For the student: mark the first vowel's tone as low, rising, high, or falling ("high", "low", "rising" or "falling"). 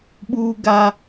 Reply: high